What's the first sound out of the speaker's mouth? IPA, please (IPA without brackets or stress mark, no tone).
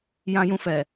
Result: j